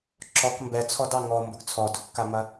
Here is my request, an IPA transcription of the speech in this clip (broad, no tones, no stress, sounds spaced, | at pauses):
ǁ ɔ k m b ɛ t͡sʰ ɔ d ɑ ŋ ɔ m b ʊ ɡ t͡sʰ ɔ d ʊ kː a m ɐ